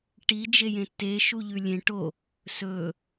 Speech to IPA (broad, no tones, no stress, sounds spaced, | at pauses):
ʈ i d͡ʒ e j ẽ tː e ʃ u ʎ ʉ lʲ ẽ ʈ o | s ɵ